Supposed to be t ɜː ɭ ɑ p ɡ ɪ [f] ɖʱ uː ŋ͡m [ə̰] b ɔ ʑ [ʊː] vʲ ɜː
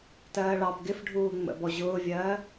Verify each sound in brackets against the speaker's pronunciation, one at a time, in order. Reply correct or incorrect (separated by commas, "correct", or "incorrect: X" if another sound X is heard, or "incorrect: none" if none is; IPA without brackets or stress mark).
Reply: correct, correct, correct